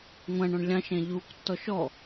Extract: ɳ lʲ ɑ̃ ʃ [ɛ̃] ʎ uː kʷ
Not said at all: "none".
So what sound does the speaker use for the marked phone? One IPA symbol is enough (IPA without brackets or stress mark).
æ̃